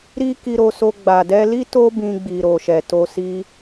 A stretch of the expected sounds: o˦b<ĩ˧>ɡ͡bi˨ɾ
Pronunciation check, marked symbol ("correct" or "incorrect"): correct